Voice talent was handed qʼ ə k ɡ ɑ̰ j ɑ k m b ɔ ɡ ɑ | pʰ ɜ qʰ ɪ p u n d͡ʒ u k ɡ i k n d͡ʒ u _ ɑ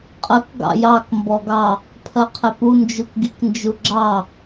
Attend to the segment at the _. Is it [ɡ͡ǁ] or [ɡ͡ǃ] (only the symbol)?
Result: ɡ͡ǁ